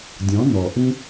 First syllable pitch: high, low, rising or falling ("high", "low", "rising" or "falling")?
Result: rising